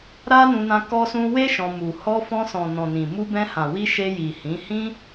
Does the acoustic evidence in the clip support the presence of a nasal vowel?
yes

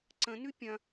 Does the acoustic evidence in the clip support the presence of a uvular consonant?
no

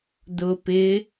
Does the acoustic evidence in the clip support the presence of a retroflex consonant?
no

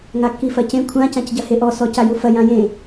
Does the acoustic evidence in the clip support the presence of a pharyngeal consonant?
no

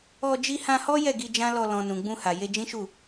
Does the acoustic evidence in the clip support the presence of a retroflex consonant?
no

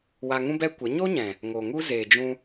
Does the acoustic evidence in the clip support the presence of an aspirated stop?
no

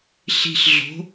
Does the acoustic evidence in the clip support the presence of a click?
no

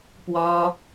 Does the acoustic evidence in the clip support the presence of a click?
no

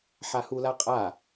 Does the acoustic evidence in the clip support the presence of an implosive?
no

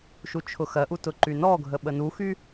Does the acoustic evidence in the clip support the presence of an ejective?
no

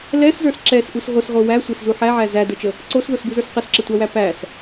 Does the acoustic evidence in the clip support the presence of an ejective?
no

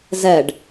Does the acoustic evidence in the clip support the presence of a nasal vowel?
no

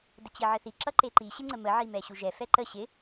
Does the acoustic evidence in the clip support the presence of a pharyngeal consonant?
yes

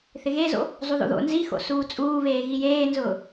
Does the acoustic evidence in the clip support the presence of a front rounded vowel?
no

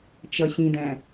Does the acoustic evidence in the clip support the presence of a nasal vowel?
yes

